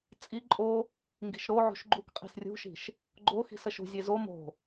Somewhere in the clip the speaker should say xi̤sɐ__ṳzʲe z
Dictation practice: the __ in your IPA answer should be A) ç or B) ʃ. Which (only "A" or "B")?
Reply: B